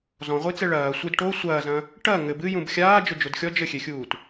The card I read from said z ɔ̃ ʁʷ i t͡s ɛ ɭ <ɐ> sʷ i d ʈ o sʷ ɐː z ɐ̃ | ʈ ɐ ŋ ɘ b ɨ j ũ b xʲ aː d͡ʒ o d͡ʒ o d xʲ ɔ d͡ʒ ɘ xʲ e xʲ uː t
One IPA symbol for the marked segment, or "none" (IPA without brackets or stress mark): ɐː